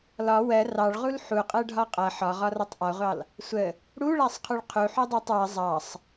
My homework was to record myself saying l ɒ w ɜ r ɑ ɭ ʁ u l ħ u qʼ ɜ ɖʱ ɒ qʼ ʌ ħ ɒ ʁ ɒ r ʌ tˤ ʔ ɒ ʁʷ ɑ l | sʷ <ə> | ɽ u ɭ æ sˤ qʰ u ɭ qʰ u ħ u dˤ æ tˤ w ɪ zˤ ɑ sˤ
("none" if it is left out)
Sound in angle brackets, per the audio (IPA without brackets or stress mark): ə